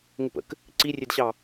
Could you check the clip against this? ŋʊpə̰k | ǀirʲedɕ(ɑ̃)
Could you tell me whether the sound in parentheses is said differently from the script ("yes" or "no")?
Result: yes